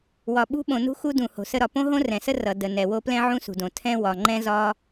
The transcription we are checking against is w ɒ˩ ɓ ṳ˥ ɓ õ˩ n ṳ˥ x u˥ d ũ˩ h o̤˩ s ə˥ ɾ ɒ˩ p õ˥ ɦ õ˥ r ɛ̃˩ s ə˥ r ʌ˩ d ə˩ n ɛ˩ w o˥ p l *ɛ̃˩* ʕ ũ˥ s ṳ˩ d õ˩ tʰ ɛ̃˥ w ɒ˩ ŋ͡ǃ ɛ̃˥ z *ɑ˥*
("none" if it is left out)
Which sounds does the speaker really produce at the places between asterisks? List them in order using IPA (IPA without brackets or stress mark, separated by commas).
ɛ̃˥, ɒ˥